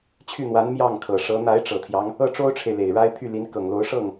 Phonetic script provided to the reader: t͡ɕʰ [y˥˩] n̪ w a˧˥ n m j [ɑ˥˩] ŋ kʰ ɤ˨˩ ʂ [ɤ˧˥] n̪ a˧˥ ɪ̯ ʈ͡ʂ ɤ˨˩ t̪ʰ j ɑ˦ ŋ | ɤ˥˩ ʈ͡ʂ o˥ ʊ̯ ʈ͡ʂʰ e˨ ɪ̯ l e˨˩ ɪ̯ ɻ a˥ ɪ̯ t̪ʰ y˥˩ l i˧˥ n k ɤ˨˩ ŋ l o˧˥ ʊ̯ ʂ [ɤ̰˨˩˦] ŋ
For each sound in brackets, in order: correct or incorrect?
correct, correct, correct, incorrect: ɤ˥˩

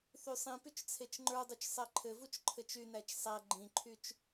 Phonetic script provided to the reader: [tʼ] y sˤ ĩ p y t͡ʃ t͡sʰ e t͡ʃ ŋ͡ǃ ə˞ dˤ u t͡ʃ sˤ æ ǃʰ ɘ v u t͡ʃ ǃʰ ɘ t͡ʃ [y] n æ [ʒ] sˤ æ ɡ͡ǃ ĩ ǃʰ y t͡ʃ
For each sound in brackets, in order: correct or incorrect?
incorrect: θ, correct, incorrect: t͡ʃ

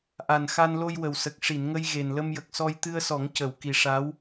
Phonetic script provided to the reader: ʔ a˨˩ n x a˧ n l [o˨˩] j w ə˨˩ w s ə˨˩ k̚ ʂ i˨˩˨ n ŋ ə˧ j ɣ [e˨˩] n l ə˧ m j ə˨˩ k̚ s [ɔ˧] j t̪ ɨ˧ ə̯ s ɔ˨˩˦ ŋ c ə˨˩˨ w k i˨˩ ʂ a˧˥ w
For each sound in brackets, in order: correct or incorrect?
incorrect: o˧, correct, correct

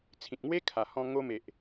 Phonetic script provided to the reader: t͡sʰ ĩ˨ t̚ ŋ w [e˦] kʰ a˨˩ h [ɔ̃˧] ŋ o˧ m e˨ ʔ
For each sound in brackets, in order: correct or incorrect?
correct, correct

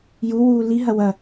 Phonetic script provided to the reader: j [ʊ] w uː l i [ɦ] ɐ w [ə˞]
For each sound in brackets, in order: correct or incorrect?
incorrect: u, correct, incorrect: ɐ

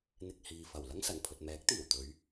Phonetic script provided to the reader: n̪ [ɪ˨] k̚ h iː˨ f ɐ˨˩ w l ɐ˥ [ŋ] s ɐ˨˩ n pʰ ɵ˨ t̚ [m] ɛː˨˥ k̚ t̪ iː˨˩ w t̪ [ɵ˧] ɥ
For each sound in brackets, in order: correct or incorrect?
correct, correct, correct, incorrect: ɵ˨˧

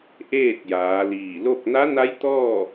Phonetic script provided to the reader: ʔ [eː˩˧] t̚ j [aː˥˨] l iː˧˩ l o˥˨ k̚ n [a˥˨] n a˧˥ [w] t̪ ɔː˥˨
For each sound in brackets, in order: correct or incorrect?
incorrect: eː˥˨, incorrect: aː˩˧, incorrect: a˧˥, incorrect: j

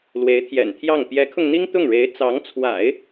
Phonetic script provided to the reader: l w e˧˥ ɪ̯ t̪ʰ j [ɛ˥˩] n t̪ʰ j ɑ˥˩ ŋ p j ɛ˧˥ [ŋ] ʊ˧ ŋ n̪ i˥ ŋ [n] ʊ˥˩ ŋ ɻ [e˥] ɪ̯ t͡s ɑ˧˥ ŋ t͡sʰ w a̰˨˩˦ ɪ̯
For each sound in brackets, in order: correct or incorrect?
incorrect: ɛ̰˨˩, incorrect: kʰ, incorrect: t̪, incorrect: e˧˥

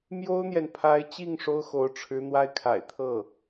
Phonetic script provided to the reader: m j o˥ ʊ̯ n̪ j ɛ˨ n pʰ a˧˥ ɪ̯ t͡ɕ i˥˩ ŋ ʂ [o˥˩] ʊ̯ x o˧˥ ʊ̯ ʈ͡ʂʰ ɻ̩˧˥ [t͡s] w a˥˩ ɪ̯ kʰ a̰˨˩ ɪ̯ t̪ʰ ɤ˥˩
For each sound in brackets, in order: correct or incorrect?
incorrect: o˥, incorrect: n̪

